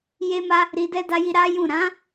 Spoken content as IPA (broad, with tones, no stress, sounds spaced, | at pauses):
j e˧ m a˧ | ɾ i˧ d ɛ˦ d a˧ j i˧ ɾ a˦ j ũ˦˨ ɾ ã˨˦